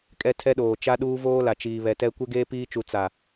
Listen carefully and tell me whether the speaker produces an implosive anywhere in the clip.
yes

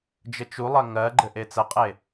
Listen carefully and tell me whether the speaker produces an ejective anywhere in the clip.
yes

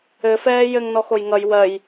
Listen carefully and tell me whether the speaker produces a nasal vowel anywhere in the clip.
no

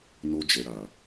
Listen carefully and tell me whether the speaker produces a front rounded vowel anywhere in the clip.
no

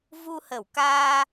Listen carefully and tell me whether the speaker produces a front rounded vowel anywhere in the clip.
no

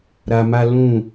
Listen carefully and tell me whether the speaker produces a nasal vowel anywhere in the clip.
yes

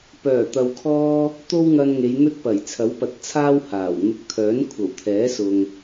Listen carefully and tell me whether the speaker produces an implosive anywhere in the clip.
no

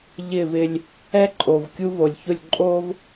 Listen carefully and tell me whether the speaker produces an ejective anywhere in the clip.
yes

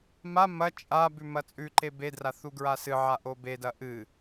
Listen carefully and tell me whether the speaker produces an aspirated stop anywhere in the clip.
no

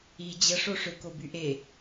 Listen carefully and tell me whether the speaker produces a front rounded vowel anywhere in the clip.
yes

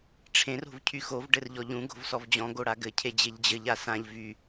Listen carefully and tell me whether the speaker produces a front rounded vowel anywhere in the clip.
yes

